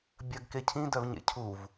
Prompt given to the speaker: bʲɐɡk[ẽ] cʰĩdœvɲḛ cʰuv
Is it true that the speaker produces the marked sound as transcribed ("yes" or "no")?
no